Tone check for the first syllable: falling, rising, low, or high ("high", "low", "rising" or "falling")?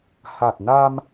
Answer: low